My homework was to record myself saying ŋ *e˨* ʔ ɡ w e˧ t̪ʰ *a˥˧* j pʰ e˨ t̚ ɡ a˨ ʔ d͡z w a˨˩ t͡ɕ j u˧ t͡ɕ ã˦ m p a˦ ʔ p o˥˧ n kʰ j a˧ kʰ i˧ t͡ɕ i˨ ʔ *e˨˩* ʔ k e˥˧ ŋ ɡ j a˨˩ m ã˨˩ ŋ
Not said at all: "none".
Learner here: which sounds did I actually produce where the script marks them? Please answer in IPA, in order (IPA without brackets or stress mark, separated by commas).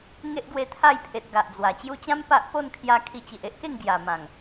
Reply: e˦, a˥˧, e˦